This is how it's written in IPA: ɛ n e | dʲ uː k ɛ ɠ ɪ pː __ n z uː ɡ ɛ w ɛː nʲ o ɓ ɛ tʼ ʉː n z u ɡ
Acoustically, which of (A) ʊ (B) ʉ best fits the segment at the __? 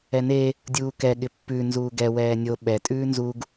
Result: B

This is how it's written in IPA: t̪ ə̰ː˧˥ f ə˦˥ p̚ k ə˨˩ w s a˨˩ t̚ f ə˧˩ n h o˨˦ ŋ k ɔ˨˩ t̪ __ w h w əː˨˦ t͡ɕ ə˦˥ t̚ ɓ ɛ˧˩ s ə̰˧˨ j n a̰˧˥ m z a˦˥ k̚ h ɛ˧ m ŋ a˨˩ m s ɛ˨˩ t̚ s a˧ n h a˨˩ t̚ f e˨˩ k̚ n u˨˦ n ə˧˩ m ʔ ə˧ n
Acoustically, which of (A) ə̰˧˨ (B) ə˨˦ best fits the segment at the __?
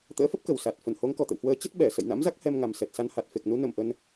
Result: A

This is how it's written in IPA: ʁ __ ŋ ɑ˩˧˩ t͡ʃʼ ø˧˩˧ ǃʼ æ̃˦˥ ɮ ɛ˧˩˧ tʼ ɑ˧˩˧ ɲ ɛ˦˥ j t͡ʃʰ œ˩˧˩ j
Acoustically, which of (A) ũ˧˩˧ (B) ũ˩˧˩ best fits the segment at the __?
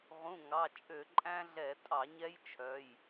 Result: B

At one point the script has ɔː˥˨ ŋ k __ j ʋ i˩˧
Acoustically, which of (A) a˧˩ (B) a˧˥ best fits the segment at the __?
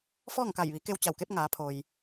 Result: A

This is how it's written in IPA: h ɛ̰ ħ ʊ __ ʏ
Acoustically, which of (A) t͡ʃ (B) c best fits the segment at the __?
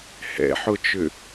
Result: A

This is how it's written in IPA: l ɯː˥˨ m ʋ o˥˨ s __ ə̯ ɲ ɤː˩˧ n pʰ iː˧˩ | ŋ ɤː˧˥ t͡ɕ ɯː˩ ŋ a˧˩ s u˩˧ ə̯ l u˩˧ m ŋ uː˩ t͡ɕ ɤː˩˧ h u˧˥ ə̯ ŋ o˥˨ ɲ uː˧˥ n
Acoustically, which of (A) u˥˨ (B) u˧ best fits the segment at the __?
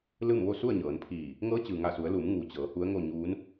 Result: A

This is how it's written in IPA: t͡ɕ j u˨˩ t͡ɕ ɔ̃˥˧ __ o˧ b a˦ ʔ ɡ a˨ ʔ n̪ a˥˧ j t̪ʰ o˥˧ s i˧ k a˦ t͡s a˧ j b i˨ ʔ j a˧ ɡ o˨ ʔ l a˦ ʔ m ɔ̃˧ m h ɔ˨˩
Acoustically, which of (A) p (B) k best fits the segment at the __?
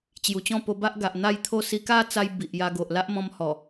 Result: A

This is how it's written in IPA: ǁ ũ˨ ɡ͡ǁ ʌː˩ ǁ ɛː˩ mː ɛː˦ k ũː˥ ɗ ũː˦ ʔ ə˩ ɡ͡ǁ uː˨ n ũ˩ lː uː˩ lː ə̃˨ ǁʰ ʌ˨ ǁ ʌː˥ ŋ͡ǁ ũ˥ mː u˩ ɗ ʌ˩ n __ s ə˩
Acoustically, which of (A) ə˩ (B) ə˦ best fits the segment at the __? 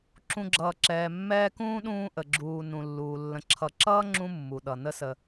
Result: B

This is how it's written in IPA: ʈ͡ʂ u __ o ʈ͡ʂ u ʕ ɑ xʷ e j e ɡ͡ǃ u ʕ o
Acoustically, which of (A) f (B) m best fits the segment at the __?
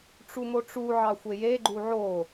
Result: B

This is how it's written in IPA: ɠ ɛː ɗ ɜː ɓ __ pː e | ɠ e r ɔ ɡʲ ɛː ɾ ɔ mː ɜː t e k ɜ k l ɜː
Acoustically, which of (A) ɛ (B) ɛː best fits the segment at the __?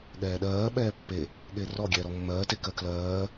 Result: B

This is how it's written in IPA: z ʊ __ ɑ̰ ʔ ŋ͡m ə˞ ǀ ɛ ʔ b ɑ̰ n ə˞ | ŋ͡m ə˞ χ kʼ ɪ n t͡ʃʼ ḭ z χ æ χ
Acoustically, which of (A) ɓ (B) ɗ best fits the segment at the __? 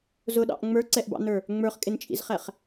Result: B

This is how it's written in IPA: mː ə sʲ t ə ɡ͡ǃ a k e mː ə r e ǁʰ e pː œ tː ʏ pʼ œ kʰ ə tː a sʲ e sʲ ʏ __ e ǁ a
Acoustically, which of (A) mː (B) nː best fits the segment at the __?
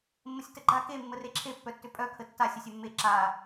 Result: A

